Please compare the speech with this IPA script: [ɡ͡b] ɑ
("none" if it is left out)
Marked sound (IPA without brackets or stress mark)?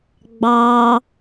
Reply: ɡ͡b